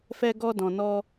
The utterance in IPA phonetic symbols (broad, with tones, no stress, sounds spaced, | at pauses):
f ɛ˧ ɡ ɔ˧ d ɔ̃˨ n ɔ˧